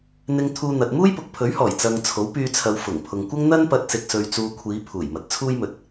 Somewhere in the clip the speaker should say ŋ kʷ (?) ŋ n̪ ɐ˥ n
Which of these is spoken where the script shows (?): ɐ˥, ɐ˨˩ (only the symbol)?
ɐ˥